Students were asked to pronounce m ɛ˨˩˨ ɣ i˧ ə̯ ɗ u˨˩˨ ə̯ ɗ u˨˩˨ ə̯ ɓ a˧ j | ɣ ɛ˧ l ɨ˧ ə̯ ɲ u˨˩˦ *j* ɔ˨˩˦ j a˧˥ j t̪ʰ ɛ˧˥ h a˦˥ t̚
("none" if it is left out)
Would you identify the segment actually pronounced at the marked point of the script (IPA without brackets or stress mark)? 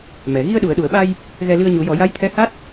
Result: j